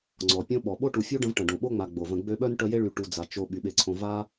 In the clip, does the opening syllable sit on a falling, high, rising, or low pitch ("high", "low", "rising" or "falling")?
low